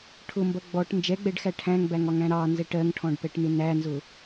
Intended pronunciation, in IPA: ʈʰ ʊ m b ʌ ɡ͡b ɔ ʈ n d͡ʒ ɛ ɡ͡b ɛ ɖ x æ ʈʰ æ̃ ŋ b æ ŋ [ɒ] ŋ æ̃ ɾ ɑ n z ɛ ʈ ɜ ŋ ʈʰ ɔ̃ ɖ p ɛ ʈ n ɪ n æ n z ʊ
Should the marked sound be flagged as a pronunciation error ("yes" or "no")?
no